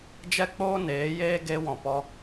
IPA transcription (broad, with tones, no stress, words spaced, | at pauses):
d͡ʒɛ˦k͡poː˦neː˨˦jeː˦ ɡe˧wɔ̃˨pɔ˧